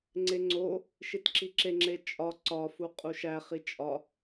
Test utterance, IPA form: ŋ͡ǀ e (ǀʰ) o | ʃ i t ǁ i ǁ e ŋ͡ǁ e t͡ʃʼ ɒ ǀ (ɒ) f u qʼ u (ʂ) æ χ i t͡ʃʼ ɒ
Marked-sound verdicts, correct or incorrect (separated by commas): incorrect, correct, incorrect